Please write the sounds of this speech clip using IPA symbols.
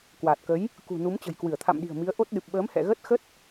k w aː˨˩ t̚ k ə˨˦ j | k ṳ˨˩ n u˨˦ m t͡ɕ ə̤˨˩ j k w ɨ˧˩ ə̯ t̪ʰ a̰˧˨ m ɗ i̤˨˩ ə̯ m i˨˦ ə̯ ʔ o˦˥ t̚ ɗ ɨ˨˩ p̚ ɓ əː˨˦ m h ɛ̰˧˨ ɣ ə˦˥ t̚ x ə˦˥ t̚

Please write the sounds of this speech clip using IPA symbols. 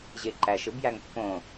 ʑ e ǃ æ ʃ ɯ b j æ ŋ pː õ

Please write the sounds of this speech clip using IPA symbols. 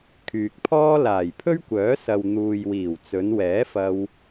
kʰ yː˨ k̚ pʰ ɔː˥ l aː˨˩ j pʰ ɵ˥ ɥ kʷ œː˨˥ s ɐ˨ w n̪ uː˨ j w iː˨˩ w t͡s ɵ˨˧ n w ɛː˨˥ f ɐ˧ w

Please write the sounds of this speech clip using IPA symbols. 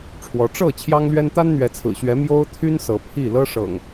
ʈ͡ʂʰ w ɔ˨˦ ʈ͡ʂ ɤ˥˨ t͡ɕʰ j ɑ˦ ŋ l ɥ ɛ˦ n t̪ a˦ n n̪ ɥ ɛ˨˦ t͡sʰ ɹ̩˨˩ ɕ ɥ ɛ˨˦ m j o˦ ʊ̯ t̪ʰ y˦ n s ɤ˨˦ pʰ i˥˨ l ɤ˦ ʂ ɤ̰˨˩ ŋ

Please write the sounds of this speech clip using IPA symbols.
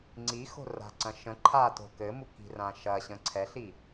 ŋ͡ǀ i x o̤ r a̤ ǀ ɐ̃ ʃ ə̃ ǃʰ a t o̤ k ɘ m u k i̤ r ã ʃ ɐ ɕ ə̃ ǀʰ ɛ ɬ i

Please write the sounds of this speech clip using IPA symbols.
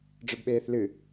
ɖ͡ʐ ɵ b ɓ eː θ l ɨ

